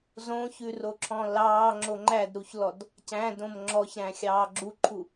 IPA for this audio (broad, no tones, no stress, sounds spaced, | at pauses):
z õ ç ʉ r o ǁʰ ɔ̃ l ɑː ŋ͡ǁ o ŋ͡ǃ æ d ɾ u ç l ɔ d | c æ̃ d õ m ŋ͡ǁ ɔ ç ɾ æ̃ xʲ ɑː ɡ͡ǁ u ǃʰ u